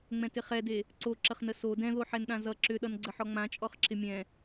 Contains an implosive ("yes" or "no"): yes